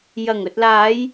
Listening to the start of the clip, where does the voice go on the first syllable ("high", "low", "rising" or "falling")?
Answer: low